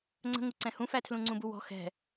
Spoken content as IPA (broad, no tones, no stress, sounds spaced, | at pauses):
ŋ͡ǀ ə̤ ŋ u ǀ ɛ̃ h ũ f æ tʰ l ũ ŋ͡ǀ ũ b u w ɔ̤ x ɛ̤